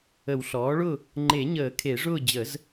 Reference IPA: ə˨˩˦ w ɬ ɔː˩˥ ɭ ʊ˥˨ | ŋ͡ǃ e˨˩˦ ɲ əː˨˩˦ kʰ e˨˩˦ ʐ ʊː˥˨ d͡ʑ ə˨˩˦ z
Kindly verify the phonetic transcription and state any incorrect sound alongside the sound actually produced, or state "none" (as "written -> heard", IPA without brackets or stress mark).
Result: none